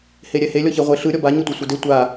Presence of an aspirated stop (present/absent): absent